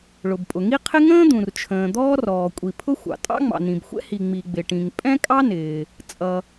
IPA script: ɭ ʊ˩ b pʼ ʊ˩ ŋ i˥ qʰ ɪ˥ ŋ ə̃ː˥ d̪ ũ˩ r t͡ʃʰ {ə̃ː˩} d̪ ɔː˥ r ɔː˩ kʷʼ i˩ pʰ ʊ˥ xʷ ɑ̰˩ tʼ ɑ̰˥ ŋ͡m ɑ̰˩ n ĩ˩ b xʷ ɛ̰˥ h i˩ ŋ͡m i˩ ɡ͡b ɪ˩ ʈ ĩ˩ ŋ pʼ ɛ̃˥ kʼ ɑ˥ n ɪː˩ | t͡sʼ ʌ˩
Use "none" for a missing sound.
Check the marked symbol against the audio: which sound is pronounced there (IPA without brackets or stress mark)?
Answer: ə̃ː˩